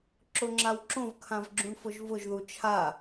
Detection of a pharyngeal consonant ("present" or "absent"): absent